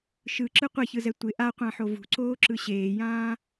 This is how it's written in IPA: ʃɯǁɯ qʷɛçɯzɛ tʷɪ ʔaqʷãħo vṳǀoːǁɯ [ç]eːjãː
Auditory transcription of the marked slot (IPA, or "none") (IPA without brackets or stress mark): ɕ